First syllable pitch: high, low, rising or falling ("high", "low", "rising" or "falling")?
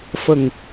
low